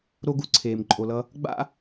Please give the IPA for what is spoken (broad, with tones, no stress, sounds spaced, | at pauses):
ɾ o˥ ɡ u˥˧ ǀʰ eː˧ m ǃʼ o˧ l ʌ˥ | ɡ͡b a̰˥